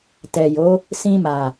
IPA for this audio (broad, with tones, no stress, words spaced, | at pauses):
tɛ˨jo˨˦ | sĩ˧ma˨